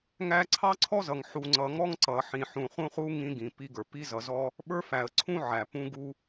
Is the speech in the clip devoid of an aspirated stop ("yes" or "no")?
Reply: no